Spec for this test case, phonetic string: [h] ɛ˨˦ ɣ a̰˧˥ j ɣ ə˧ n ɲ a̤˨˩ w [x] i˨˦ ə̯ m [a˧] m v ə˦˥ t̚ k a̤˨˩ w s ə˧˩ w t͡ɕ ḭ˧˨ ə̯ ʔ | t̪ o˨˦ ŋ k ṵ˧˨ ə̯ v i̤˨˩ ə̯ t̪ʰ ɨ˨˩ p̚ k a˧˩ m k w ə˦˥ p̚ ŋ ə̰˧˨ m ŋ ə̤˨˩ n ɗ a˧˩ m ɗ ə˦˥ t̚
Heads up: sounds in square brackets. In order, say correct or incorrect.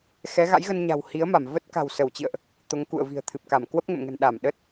incorrect, incorrect, incorrect

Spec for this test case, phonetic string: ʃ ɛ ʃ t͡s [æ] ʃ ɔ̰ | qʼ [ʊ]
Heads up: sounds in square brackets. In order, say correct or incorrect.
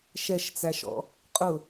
correct, correct

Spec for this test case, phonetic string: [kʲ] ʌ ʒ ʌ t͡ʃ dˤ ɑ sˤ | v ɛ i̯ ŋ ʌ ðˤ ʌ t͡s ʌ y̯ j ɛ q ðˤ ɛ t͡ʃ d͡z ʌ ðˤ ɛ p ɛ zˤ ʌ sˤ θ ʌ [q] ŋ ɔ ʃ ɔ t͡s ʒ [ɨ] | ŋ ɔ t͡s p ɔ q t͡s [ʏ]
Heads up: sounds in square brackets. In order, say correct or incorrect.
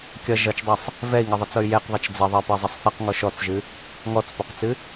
correct, correct, correct, incorrect

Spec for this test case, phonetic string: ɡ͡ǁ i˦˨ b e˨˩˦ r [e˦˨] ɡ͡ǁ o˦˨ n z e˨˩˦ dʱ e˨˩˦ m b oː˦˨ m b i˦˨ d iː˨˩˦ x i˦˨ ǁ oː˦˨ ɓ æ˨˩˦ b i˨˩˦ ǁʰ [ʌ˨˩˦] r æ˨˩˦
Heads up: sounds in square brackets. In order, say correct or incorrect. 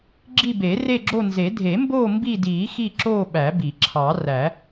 correct, incorrect

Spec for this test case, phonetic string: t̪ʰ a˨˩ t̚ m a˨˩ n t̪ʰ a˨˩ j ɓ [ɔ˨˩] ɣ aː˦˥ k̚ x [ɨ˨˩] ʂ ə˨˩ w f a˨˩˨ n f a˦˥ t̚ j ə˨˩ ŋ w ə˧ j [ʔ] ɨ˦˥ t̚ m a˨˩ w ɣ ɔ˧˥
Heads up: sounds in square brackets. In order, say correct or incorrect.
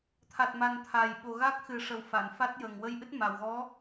incorrect, correct, correct

